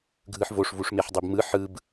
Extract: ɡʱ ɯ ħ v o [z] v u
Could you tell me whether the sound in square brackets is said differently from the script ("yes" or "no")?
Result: yes